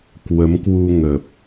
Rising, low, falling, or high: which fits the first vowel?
rising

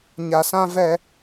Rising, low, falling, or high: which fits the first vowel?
low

